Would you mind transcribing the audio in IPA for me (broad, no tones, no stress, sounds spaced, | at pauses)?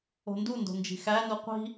o̤ n d u n d o̤ n d͡ʒ i̤ x æ n u qʷ i̤